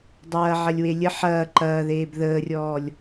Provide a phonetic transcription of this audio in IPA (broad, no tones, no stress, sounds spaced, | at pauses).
dˤ ɐː ʕ ɐ lʲ w e lʲ ə ħ ɐː ǃ ɐː ð eː b ð əː rʲ ɔː lʲ